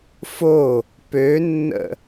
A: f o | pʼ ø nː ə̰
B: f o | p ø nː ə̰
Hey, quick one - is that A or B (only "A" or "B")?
B